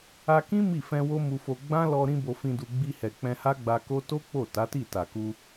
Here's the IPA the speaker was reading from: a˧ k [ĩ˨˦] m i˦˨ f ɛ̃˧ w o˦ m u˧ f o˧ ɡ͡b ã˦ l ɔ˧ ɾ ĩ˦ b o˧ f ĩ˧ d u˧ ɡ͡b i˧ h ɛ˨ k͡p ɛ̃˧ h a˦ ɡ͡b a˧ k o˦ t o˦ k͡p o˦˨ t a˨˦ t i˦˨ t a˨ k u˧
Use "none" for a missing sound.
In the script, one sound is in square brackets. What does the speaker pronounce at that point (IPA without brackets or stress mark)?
ĩ˦